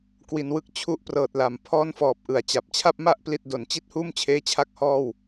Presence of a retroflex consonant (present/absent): absent